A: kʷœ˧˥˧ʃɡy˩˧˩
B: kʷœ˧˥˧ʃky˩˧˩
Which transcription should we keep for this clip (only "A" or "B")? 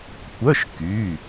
B